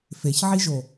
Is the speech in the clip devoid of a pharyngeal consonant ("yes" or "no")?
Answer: no